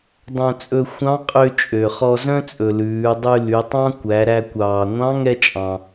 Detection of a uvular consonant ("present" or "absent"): present